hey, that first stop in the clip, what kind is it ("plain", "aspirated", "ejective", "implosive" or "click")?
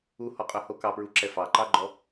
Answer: ejective